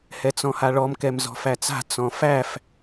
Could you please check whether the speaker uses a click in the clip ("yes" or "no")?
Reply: no